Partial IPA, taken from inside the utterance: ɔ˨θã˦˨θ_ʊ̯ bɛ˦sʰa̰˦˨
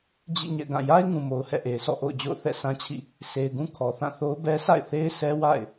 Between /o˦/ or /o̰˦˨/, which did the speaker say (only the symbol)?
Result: o˦